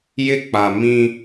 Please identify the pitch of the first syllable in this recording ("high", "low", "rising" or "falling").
high